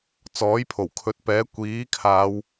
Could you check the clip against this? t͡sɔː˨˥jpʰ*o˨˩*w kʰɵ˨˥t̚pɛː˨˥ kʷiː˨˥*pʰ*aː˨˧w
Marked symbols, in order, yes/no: yes, no

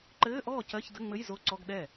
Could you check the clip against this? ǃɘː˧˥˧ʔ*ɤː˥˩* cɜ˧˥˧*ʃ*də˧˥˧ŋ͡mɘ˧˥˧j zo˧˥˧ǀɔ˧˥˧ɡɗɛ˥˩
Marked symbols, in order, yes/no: no, no

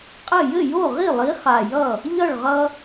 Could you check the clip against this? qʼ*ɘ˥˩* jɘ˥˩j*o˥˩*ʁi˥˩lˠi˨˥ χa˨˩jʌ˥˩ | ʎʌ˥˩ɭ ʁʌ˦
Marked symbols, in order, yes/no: yes, yes

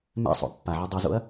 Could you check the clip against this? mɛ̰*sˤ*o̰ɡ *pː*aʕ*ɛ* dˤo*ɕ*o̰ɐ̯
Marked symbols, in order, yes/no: yes, yes, yes, no

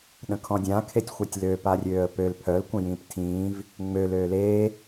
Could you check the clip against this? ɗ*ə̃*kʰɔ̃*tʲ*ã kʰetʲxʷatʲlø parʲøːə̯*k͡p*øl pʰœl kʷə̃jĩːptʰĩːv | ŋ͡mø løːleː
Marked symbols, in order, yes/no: yes, no, no

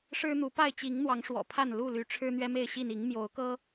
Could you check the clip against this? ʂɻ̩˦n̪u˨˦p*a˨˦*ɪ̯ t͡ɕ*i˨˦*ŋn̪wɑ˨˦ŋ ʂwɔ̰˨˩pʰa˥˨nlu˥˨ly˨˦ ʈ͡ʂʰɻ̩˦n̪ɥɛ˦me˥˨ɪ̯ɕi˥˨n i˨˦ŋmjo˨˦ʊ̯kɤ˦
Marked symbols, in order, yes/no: no, yes

